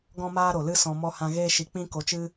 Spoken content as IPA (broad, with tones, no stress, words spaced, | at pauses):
ɡɔ̃˦maː˦ɾo˨lɨ˦ sɔ̃˧mɔ˦hã˦ ɣeː˦ʃi˧k͡pĩ˦ ko˧t͡ʃɨ˦